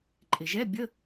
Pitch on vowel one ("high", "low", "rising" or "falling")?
low